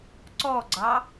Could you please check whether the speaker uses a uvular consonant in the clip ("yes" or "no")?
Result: no